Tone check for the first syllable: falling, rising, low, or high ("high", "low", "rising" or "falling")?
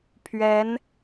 rising